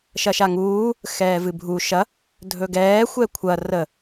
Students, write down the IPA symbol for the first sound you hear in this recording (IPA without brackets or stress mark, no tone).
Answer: ʃ